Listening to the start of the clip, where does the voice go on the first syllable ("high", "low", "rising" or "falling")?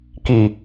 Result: low